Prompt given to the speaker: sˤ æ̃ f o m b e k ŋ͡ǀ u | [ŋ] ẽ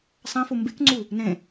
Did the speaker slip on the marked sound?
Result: yes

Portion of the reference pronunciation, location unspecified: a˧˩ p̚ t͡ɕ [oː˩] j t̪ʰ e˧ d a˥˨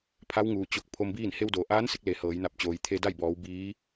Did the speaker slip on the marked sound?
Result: no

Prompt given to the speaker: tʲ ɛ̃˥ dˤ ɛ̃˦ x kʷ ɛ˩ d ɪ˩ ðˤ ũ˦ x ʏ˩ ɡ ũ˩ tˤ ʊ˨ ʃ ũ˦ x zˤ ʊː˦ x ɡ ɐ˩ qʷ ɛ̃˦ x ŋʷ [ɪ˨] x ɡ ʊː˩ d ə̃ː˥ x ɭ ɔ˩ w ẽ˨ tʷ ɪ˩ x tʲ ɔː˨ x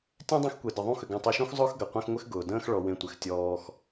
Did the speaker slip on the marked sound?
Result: yes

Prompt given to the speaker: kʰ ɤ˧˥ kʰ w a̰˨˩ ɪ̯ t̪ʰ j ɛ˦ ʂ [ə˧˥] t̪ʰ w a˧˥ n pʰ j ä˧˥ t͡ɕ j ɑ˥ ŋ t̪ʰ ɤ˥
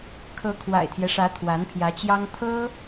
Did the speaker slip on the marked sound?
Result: yes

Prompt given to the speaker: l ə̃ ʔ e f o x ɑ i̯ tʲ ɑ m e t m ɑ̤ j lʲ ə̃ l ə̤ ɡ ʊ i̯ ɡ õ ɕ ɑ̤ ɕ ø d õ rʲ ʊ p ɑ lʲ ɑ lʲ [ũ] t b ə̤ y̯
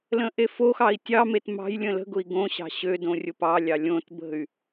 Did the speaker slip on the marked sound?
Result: yes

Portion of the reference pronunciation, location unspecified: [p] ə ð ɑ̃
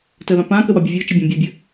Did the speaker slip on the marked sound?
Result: yes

